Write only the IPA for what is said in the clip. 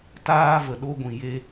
t aː˧ v ə˨ ɗ o˧ ɡʷ ĩ˨ j e˧

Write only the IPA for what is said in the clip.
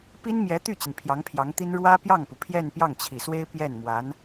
p i˥ n m j ɛ˧˥ t̪ y˥˩ t͡ɕ i˩ n pʰ j ɑ˧˥ ŋ pʰ j ɑ˧˥ ŋ t̪ i˥ n ɻ w ä˥ p j ɑ˥˩ ŋ p u˩ pʰ j ɛ˥˧ n p j ɑ˥˩ ŋ t͡ɕʰ i˨˩ s w e˥ ɪ̯ p j ɛ˥˩ n m w a˧˥ n

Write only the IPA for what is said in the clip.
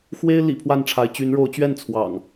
x w e˦ ɪ̯ l ḭ˨˩ pʰ w a˥˨ n ʈ͡ʂʰ a˨˦ ɪ̯ t͡ɕ y˨˦ n ɻ o˨˦ ʊ̯ t͡ɕ ɥ ɛ˥˨ n t͡sʰ w ɑ̰˨˩ ŋ

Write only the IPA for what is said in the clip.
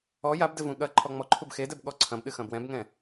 ɔ j a b d ɘ v ũ ɠ ɐ ǃʰ ɔ ŋ͡m ɔ ǃʰ u b x e d ɛ b ɠ ɔ ǀʰ ɐ̃ b ɗ ɨ x ɐ̃ b w ɛ̃ b ŋ ɛ̃

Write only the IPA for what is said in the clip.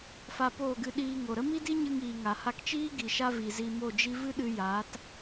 f a˧ p oː˦˨ ɡ ɨ˧ ɗ iː˧ ŋ o˨ ɾ ə˦ m i˦ d i˦ ɲ ɨ˧ ŋ iː˨ ŋ a˨ h a˧ k t͡ʃ iː˦ ɡ i˨ ʃ a˧ v i˨ z i˧ m o˦˨ d͡ʒ i˦ v ɨ˦ ɗ ɨ˧ j aː˨˦ t

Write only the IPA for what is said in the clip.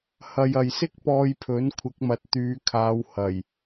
h ɐ˨ j ɐ˨ j s ɪ˥ k̚ p ɔː˧ j pʰ ɵ˨˥ n kʷʰ ɪ˨˥ k̚ m ɐ˨ t̚ t̪ yː˨˧ kʰ aː˨˧ w h ɐ˨˩ j

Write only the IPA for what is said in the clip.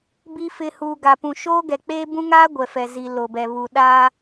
b i˨ f ɪ˨ h uː˨ ɡ a˨ p ũ˨ ʃ oː˦ ɡ ɛ˨ k͡p eː˦ b ũ˦ ŋ aː˦ ɡʷ ɛ˨ f ɛ˨ z i˨ l o˨ b ɛ˨ β u˨ ɗ aː˦

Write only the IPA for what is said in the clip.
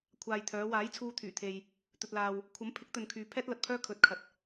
kʷʰ aː˨ j t̪ʰ œː˨˧ w aː˨˥ j t͡sʰ uː˧ t̪ʰ yː˨˩ t̪ʰ e˨ j | t̪ ɵ˨ t̚ l aː˨ w | kʷʰ ɐ˨˥ m pʰ ɪ˨˥ k̚ t̪ ɵ˨ n kʰ yː˨ pʰ ɛː˥ t̚ l ɐ˨ t̚ pʰ œː˥ kʰ ɵ˨˥ t̚ kʰ ɐ˨ t̚

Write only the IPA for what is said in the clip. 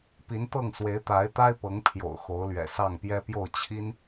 p i˧˥ n t̪ ɤ˥˩ ŋ s w e˧˥ ɪ̯ t̪ a˧˥ ɪ̯ t̪ a˥ ɪ̯ p ɤ˧˥ ŋ pʰ j o̰˨˩ ʊ̯ x o˧˥ ʊ̯ l ɥ ɛ̰˨˩ s ɑ˥˩ ŋ p j ɛ˥ p j o˥˩ ʊ̯ t͡ɕʰ i˥ n

